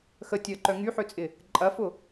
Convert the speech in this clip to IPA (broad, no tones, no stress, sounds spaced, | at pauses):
x ə tʲ œ ə̯ ǃ œ ŋ y ħ ø t͡sʼ ɪ | ǃʼ ɐ f ʊ